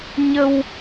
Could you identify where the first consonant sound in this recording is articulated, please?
palatal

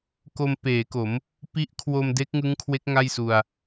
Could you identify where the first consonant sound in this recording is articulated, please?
velar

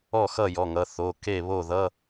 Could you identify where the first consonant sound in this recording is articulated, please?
velar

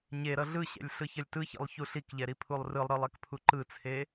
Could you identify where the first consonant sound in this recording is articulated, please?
palatal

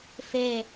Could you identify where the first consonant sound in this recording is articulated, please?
labial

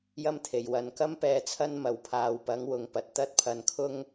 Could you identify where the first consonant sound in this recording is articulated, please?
palatal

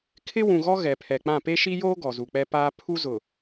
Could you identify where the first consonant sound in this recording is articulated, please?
velar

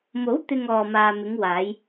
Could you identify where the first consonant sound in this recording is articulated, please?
labial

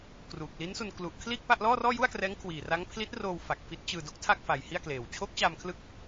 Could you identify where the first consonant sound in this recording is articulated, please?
velar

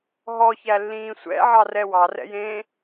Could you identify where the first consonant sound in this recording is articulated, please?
glottal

